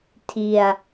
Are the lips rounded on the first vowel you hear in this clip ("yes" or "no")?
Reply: no